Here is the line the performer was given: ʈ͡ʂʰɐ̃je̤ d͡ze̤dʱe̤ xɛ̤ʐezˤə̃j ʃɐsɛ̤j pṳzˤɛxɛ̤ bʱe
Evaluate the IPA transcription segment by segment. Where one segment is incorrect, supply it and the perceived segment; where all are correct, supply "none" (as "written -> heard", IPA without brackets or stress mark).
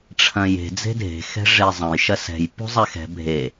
ə̃ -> ɐ̃